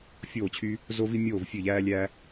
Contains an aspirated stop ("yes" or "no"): yes